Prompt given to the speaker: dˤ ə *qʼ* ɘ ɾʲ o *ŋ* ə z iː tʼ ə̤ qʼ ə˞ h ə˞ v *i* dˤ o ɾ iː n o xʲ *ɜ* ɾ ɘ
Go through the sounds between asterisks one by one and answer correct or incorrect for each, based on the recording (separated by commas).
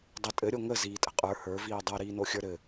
incorrect, correct, incorrect, incorrect